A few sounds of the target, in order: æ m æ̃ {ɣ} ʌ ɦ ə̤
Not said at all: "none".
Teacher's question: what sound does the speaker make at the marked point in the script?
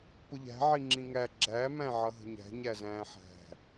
ʕ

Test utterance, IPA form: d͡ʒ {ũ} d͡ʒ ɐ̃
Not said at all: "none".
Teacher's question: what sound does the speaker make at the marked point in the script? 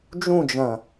ũ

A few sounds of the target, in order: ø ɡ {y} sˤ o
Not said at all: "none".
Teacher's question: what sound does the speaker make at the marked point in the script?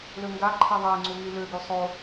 y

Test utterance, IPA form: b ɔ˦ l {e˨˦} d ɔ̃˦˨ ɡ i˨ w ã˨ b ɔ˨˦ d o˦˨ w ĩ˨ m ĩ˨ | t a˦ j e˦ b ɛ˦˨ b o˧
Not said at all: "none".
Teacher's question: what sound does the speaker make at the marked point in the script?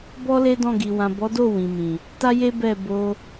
e˦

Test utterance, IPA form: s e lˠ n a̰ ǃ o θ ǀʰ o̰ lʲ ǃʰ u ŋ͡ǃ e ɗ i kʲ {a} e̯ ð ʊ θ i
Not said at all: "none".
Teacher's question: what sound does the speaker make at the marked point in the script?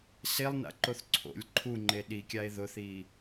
a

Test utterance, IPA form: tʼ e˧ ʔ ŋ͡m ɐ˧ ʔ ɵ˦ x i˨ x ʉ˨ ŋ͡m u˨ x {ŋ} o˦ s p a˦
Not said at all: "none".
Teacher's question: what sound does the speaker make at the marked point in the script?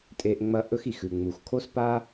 kʰ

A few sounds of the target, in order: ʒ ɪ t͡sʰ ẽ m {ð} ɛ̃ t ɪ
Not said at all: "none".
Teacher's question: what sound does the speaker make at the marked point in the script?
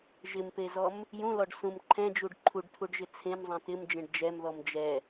zˤ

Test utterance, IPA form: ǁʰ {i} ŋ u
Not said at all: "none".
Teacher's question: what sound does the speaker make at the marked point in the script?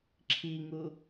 i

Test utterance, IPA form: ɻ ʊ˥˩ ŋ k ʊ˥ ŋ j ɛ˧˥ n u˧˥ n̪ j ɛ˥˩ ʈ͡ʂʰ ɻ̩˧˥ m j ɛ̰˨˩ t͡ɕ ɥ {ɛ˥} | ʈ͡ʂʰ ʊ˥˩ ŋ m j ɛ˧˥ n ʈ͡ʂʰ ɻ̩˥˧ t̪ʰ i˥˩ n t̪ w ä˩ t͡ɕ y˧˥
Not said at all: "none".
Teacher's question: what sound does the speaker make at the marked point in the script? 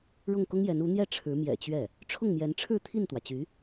ɛ˥˩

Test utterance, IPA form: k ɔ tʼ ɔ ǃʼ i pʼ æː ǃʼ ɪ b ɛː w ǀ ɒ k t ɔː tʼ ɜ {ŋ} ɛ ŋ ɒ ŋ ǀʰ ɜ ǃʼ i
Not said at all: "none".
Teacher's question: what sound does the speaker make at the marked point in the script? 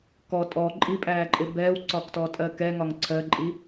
k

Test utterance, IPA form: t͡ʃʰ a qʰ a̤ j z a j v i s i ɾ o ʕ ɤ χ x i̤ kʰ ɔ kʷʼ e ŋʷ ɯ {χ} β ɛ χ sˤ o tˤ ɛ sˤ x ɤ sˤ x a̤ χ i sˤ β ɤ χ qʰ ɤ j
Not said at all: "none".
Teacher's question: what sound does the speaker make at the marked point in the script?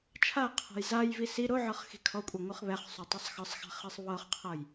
χ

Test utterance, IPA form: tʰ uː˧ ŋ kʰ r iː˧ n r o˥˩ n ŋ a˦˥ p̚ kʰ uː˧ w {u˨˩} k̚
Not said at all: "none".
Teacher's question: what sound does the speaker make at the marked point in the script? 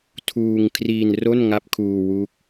u˦˥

